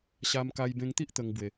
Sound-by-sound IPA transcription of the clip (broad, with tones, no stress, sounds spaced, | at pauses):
ɕ a˧ m k a˧ j b ẽ˧ ŋ t̪ i˦ ʔ t̪ ə˧ ŋ b w e˨˩